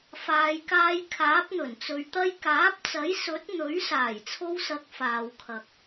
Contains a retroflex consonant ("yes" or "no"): no